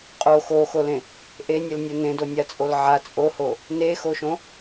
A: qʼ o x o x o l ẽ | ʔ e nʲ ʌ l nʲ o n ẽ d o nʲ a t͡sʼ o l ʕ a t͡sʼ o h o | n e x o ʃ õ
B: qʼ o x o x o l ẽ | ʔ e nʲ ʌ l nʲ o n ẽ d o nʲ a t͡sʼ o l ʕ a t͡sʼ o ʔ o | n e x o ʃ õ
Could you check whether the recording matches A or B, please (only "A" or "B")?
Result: A